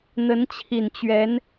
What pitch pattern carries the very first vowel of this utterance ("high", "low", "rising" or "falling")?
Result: rising